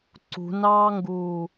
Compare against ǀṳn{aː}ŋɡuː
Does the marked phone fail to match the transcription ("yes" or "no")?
yes